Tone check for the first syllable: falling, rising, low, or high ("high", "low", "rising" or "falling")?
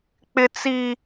high